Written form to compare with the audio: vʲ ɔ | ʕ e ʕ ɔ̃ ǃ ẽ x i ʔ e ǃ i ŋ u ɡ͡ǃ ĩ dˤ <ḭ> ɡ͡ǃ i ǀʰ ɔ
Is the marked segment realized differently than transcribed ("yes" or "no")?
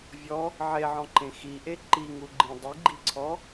yes